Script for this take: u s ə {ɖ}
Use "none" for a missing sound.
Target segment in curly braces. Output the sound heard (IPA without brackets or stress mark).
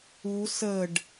ɖ